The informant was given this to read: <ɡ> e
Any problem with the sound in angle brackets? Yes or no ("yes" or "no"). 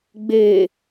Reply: yes